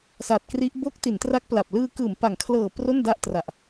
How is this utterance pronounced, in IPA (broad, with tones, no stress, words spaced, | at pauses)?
sa˨˩t̚kri˦˥ʔ bo˦˥k̚ ti˩˦ntra˦˥k̚pla˨˩p̚lɯː˧ kɯː˩˦mpa˩˦ŋkʰlɤː˨˩ pro˥˩nda˥˩ʔ tra˨˩ʔ